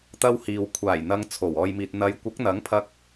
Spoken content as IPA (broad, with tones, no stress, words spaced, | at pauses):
t̪ɐ˧whiː˨w kʷʰaː˨˩j n̪ɐ˧ŋt͡sʰo˨˩w ɔː˨jmiː˨t̚ n̪ɐ˨˧j kʷɐ˨˥k̚n̪ɐ˨˥ŋpʰɐ˧k̚